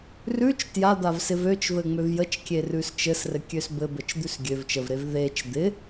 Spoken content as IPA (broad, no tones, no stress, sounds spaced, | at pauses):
r ʉ t͡ʃ t j a d̪ a v s ɪ v ø t͡ʃ v ɘ ŋ͡m ø v j ə t͡ʃ kʲ e r ʉ s t͡ʃ ɘ s r ɘ kʲ ø s b ɘ b ə t͡ʃ d̪ ʉ s ɡʲ ø v t͡ʃ ə v ɾ e v ð e t͡ʃ d̪ ɪ